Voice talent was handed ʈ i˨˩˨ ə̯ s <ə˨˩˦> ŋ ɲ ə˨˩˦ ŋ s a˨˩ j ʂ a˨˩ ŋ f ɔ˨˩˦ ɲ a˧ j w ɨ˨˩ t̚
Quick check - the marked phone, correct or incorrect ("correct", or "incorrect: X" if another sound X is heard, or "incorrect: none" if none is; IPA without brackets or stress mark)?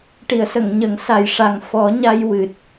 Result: incorrect: ə˨˩˨